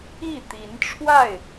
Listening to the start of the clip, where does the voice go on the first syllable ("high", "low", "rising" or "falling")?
falling